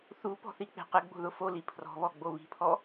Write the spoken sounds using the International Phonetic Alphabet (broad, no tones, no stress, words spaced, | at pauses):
θupɔ̤θik͡pe̤ qɪɡ͡bo̤ðʊ foli pʰrɔ̤βɔɡ͡bo βi̤pʰɔ